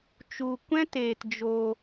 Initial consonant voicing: voiceless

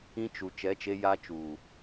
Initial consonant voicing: voiceless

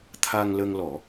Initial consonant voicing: voiceless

